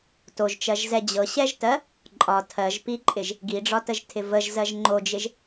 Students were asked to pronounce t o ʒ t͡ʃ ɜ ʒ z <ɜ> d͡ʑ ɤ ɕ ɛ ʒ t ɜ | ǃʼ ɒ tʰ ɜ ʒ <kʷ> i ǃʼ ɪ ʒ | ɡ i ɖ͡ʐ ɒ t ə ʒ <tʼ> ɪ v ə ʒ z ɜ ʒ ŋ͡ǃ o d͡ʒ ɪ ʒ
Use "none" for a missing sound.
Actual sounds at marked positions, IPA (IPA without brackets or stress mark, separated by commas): ɛ, p, tʰ